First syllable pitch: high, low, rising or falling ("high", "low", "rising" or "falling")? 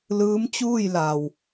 rising